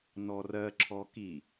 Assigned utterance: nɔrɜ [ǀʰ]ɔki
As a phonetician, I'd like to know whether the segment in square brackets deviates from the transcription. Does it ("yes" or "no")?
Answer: yes